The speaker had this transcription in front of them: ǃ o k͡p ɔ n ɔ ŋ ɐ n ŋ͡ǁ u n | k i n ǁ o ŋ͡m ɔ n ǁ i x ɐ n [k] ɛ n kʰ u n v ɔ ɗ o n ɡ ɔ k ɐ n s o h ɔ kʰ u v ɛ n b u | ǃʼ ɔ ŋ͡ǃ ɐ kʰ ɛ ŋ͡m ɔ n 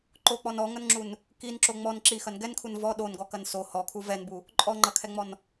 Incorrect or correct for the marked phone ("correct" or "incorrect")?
incorrect